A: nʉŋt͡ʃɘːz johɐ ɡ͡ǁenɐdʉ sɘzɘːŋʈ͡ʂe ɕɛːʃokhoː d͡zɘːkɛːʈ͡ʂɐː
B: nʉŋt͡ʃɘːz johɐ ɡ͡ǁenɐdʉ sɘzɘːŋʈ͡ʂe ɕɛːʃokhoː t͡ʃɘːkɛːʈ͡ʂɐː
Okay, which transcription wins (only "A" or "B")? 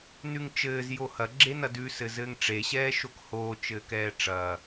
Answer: B